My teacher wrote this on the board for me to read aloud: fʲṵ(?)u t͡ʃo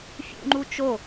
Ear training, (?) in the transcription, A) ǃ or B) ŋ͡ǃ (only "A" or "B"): B